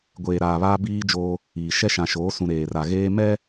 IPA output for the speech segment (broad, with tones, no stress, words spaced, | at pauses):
ɡʷeː˨ɾaː˨ βaː˦biː˦d͡ʒoː˦ | iː˨ ʃɛ˦ʃã˨ʃoː˨˦sũ˨ ɾeː˨ra˨ ɣeː˦ mɛ˦